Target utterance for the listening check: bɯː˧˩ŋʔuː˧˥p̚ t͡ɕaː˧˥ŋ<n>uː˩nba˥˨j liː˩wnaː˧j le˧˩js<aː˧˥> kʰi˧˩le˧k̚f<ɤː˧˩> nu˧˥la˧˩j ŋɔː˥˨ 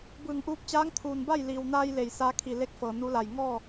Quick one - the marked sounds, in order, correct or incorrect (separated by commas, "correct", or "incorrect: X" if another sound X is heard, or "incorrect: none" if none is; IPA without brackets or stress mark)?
incorrect: t̪ʰ, correct, incorrect: ɤː˩